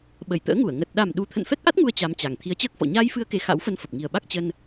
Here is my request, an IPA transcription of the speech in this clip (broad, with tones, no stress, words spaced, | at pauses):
ɓə˧˩jt̪ə̰ː˧˥ŋu˧˩ə̯ ŋə˨˩t̚ ɗa˨˩m ɗu˧ t̪ʰə̰˧˨nfɛ˦˥k̚ʔa˦˥t̚ŋu˧ə̯ t͡ɕa˧mt͡ɕa˨˩ŋ t̪ʰi˨˦ə̯t͡ɕəː˦˥k̚fɔ̰˧˨ ɲaː˧jfɨ˧ə̯ke˨˩ xa̰˧˥wfə˧nfə˨˩p̚ ŋi˨˩ə̯ɓa˦˥k̚ t͡ɕə˧n